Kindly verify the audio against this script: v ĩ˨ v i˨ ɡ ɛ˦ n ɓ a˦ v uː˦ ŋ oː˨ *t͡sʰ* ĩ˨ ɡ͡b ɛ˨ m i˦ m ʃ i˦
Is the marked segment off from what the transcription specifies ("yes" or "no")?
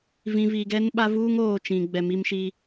yes